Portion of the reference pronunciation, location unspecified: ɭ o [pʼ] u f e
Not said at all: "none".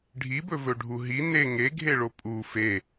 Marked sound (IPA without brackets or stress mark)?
pʼ